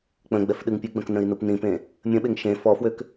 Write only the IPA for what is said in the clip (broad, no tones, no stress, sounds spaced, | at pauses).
k͡p ə̃ ɡ͡b ɛ f ɗ ɨ ŋ pʲ ɨ ɡ͡b ə̃ k n ə̃ i̯ n u p n ĩ p ẽ | mʲ ə̃ ɓ e ŋ ʃ ẽ f ɔ f w ø k